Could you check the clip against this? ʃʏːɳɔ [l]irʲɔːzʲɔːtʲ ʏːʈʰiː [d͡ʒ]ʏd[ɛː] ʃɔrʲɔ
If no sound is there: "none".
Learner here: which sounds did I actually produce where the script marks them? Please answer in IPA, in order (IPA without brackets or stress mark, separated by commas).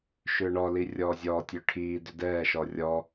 l, d, ɛː